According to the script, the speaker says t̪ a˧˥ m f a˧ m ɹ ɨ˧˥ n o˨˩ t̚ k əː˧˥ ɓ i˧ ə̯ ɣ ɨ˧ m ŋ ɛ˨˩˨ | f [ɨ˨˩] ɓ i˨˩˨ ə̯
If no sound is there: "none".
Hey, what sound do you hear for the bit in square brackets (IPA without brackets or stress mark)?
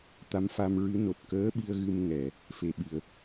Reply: e˨˩